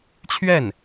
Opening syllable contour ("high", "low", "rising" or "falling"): falling